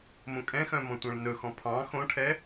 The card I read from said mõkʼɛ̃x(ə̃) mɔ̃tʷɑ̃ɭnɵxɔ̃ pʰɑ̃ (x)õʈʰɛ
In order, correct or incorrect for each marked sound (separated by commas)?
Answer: incorrect, correct